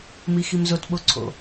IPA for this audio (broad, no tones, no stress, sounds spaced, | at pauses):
m i x i m z o t ɓ o ǀʰ o̰